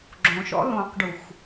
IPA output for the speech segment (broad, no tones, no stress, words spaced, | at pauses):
ɡ͡ǁõʃɔ̰ lõqɖux